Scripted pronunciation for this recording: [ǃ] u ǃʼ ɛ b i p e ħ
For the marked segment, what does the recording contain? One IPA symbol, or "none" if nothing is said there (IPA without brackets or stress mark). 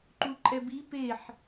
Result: ǃ